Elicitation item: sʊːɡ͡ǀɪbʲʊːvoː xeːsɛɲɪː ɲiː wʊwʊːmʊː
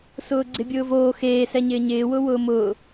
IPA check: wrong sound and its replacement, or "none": iː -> ɪː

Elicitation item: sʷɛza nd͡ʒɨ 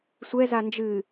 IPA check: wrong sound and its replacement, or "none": none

